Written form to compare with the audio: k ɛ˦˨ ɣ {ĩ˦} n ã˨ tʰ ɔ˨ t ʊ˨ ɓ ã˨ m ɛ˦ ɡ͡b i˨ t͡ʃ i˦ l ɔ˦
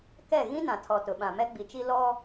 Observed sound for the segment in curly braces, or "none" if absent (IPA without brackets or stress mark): ĩ˦